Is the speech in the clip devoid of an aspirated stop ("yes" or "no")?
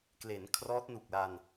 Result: no